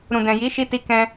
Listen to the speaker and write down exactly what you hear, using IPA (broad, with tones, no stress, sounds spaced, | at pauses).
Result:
ɾ ũ˨ d ɛ̃˨ j i˨˦ ʃ i˧ t i˧ k ɛ̃˧